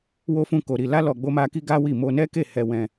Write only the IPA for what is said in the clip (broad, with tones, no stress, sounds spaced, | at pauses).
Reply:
w o˦ f ũ˦˨ k o˧ ɾ i˧ l a˦ l ɔ˧ ɡ͡b o˦ m a˦ k i˦ ɡ a˦ w i˦˨ m o˧ n ɛ˦ k e˦˨ h ɛ˧ w ɛ̃˧